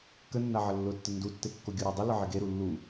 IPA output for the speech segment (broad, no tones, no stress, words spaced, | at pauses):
kənːaʕə lːʊtːə ndutːekːo ɡʲuɾadˤɪ ləʕɪɡeɾu lːu